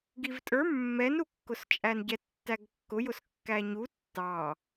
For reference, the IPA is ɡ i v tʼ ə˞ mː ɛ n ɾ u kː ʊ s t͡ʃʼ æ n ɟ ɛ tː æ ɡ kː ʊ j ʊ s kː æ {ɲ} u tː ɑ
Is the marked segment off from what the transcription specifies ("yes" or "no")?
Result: no